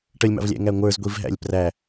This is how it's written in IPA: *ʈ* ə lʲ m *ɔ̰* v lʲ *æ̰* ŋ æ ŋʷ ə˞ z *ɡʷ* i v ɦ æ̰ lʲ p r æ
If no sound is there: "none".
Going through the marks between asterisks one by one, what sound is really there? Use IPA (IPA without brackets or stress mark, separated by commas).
ʈ, ɑ̰, æ̰, ɡʷ